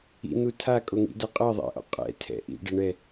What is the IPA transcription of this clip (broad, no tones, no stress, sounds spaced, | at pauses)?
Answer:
ḭ n̪ u tʰ a kʼ o ŋ ḭ d ɤ qʼ ɤ ðˤ ɛ̰ ʔ ɔ̰ qʼ ɛ̰ tʰ ɛ̰ ʔ ḭ ɖ ɛ ɳ ɛ